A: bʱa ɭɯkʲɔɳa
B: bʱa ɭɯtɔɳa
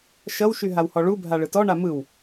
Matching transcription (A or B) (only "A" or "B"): B